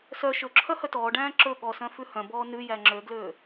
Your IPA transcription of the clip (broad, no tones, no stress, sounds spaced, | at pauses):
s œ ʃ ɵ ǁʰ œ h œ t ɔː ɖ æ̃ː ǁ ɵ ɠ ɔ s œ̃ f ʉ h œ̃ b ɔː n ʉ j æ ŋ͡ǁ ø ɡ l øː